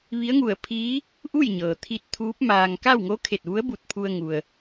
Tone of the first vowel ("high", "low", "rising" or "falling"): rising